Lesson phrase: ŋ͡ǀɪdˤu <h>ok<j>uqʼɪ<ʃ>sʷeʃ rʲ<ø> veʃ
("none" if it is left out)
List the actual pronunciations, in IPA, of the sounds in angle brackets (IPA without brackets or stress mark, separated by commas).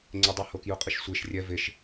h, j, ʃ, ɛ